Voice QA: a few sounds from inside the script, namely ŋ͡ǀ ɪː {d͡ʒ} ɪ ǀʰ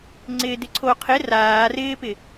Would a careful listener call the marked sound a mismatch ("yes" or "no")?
yes